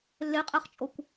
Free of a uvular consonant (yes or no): no